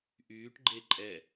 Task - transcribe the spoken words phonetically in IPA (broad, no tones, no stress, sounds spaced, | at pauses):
ʔ yː ʈ ɡ͡ǃ e ǃʼ ɛ